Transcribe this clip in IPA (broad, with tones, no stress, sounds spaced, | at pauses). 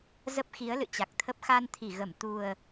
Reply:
z ə˦˥ p̚ x i˨˦ ə̯ l ɨ̰˧˨ t͡ɕ a˨˩ k̚ t̪ʰ ə˦˥ p̚ x a˧ n t̪ʰ i˧˩ ɣ ə˧˩ m t̪ u˨˩ ə̯